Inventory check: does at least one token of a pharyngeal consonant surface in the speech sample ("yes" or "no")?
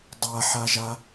yes